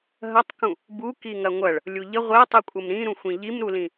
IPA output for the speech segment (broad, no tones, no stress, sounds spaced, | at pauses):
ɦ ɐ tˤ k ũ | b u k i ŋ ɐ ŋʷ ɐ ɭ | lʲ u ʎ ə ʁʷ e tˤ i kʷʼ ɐ m ɾ ĩ ɾ ũ xʷ ĩ ʎ i m ɾ u l ĩ